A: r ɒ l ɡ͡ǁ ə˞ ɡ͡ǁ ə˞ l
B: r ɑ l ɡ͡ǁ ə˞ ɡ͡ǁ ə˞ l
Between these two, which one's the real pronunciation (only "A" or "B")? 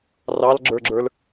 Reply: B